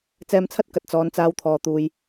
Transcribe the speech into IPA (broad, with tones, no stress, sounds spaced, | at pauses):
t͡s ɛː˧ m t͡sʰ ɐ˥ t̚ k ɐ˧ t̚ t͡s ɔː˨˧ n t͡s aː˧ w t̪ʰ ɔː˨ t̪ uː˨ j